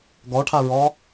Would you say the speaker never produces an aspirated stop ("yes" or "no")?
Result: no